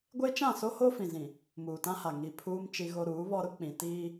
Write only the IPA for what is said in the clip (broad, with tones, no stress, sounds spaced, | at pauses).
ɡʷ e˦ t͡ʃ ã˦˨ s o˦ h o˦ f ĩ˨ z ĩ˨ | m uː˨ t ã˦ h a˨ ŋ i˨ pʰ uː˦ m t͡ʃ i˦ ɣ o˦ ɾ uː˨˦ β ɔ˦ ɾ ʊ˦ k͡p ĩ˨ t iː˦